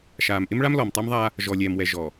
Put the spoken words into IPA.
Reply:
ʃaː˨mʔɪ˦mɭa˦m lɔ˨mtˤa˦mðˤaː˦ | ʒɔ˨lʲɛː˨mwɛ˨ ʒɔ˨

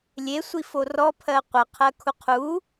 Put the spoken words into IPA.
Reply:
lʲesʷifo rɔpʰɜ qʷʌqʰɜkʰu qʰu

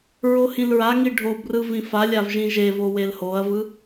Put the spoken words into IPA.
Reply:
ɹohĩlɹaŋi ɖʱobrɯ vĩfalʲav ʒĩʒevo welhoɐ̯vɯ

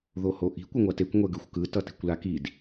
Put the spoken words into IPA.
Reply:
ðohoʔi̤ kʷɯŋʷatekʷ ŋʷɛɡɯxʷkɯ tʌti̤kʷlakid

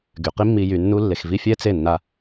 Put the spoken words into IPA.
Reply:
ɡy˨qi˦mːi˧ jy˧nːu˦ lːe˨xvi˧ fʲɛ˦t͡se˦˨nːa˧

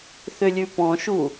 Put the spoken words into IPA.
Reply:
θʏlʲʉpɔ̃ʃu

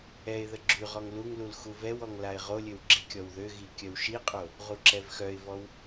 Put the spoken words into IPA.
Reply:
ɛɪ̯ ðəɡ͡ǁyʁɔŋ luŋlul xuvɛwɔŋ laɪ̯ʁolʲøw ɡ͡ǁikʲɔwðøɣi kʲœwʃiqʼo | ʁuǁɛvxœɪ̯vɔw

